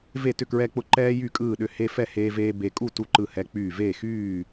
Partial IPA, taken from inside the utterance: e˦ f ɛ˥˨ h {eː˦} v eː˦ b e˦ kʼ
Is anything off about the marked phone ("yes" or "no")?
no